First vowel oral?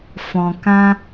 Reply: no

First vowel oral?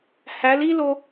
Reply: yes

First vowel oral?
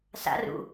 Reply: yes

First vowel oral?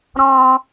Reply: no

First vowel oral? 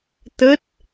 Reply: yes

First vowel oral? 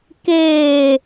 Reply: yes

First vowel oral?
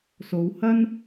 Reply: yes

